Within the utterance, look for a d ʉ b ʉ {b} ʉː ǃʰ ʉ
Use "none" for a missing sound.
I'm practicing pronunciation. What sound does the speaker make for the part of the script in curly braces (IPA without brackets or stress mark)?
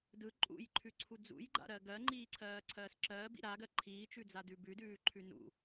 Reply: d